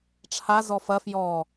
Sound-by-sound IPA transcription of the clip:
ʈ͡ʂʰ a z ɔ f ɐ f j ɔ

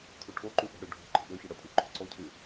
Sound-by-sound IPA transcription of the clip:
tʰ u ʈʰ o ǃ u ʔ ə̤ ɽ ø ɖʱ ɔ̤ ǃ ə̤ ɓ ø ç ə ɽ ə tʼ y ǃ ɔ̤ ǀ ɔ cʰ y

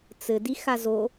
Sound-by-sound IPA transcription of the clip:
t͡s ɘ d i x a z o

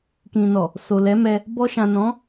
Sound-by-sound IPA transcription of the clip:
k ĩ˨ n ɔ˨ | s o˨ l ɛ˨˦ m ɛ˧ | b ɔ˧ ʃ ã˨ n ɔ̃˨˦

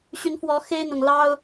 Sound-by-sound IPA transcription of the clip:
ɕ y˨˦ n f w ɔ˨˦ x e˦ ɪ̯ n̪ ʊ˨˩ ŋ l ɑ˦ ʊ̯

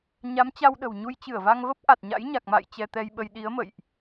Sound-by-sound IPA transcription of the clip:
ɲ a˨˦ m t͡ɕ a˧ w ɗ ə̤˨˩ w ɲ u˧ j t͡ɕ ɨ˧˩ ə̯ v a˧ ŋ v ə˦˥ p̚ ʔ a˨˩ t̚ ɲ a̰˧˥ j ɲ a˨˩ k̚ m a̰˧˨ j t͡ɕ ɛ˧ t̪ ɛ˧ j ɓ ə˧ j ɗ i˨˦ ə̯ m ə̰˧˨ j ʔ

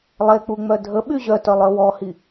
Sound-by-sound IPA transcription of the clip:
lˠ e k͡p u ŋ͡m œ dʱ ə ɓ y ʑ œ t œ lˠ œ w ɔ h i

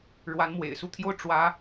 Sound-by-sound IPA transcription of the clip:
ɻ w a˧˥ n m w ḛ˨˩ ɪ̯ s u˥˧ t̪ʰ j o˥˩ ʊ̯ ʈ͡ʂ w ä˥

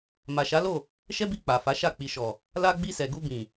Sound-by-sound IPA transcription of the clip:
m a˨ ʃ a˨˦ l o˦˨ | ʃ ɛ˦ b i˧ k͡p a˨ f a˨˦ ʃ a˦˨ k͡p i˨ ʃ ɔ˨ | l a˧ ɡ͡b i˧ s ɛ˨ ɡ u˧ b ĩ˨

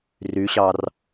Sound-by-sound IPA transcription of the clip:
r y ɕ ɑ r

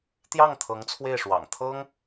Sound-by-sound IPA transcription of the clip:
t̪ j ɑ˥˩ ŋ t̪ʰ ɤ˧˥ ŋ t͡sʰ w e˥˩ ɪ̯ ʂ w ɑ̰˨˩ ŋ t̪ʰ ɤ˥ ŋ

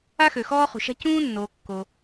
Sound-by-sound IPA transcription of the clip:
a˥ x ø˩ x ɔː˥ χ ṳ˩ ʃ a̤˥ c ũː˥ nː oː˩ kː o˩

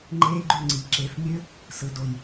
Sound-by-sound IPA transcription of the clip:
ŋ͡ǃ eː˦˥ ɡ͡ǃ y˥˩ ŋ͡ǀ i˩˥ ǁ e˩˧˩ f mʲ ø˦˥ | s ɯ˩ d o˩ j

